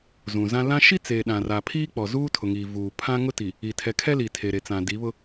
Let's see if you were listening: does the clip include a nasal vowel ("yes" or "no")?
yes